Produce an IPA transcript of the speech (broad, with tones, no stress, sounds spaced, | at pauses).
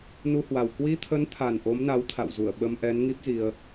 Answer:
n u˧ h w a˨˩ w k w i˧ t̪ʰ ə˨˦ n t̪ʰ a˨˩ n ʔ o˨˦ m n a˨˦ w t̪ʰ a̰˧˨ w z u˧˩ ə̯ ɓ ə˧ m ʔ ɛ˨˦ n ŋ i˦˥ p̚ z i˧ ə̯